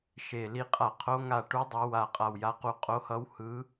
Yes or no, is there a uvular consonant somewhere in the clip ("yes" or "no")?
yes